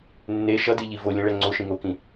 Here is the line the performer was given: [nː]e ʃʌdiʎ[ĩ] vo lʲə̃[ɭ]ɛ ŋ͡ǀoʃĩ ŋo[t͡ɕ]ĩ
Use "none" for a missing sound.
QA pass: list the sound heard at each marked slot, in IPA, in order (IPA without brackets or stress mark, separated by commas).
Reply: nː, i, ɭ, k